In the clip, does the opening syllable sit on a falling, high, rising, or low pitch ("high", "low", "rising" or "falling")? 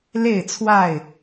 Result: falling